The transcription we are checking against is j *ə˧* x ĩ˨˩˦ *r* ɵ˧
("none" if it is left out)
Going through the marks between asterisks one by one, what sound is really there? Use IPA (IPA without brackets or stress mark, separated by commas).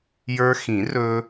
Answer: ə˞˧, r